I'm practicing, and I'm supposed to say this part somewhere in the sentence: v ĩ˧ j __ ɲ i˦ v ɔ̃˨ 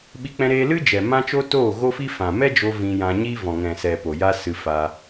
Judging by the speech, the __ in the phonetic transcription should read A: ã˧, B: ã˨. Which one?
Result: A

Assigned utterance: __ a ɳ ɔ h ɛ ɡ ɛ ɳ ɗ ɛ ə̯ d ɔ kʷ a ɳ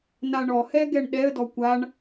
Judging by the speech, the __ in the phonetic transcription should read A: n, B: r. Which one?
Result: A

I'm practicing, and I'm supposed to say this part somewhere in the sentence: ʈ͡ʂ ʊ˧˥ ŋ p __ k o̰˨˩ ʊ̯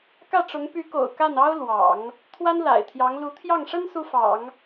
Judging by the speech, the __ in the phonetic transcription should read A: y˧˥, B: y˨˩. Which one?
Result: A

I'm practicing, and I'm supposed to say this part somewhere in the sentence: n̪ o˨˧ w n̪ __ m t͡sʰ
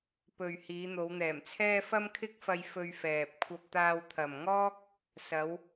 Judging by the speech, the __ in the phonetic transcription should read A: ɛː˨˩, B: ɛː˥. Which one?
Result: A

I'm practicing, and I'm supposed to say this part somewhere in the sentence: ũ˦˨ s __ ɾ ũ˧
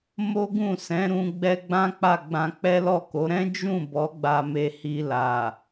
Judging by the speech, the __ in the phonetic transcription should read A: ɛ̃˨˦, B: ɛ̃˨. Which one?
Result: A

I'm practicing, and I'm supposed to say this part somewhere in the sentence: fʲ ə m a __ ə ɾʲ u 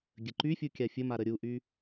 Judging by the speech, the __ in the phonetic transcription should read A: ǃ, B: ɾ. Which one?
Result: B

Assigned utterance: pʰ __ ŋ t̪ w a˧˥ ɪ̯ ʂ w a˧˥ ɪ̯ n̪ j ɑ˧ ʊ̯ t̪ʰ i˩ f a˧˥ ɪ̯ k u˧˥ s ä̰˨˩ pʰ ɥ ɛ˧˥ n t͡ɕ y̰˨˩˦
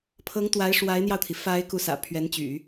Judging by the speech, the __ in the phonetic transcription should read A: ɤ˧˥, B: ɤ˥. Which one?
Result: A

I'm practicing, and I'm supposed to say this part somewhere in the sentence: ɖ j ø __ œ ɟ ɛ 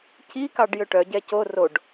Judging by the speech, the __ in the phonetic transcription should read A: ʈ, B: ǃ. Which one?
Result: A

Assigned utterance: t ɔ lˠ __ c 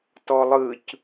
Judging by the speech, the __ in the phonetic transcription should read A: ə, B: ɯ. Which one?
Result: B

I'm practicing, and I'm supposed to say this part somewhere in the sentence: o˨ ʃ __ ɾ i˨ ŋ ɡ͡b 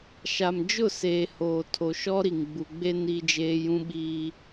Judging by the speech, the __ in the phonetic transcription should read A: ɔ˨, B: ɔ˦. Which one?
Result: B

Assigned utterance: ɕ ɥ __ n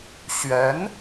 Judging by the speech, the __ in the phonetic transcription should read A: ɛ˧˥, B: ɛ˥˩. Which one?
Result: A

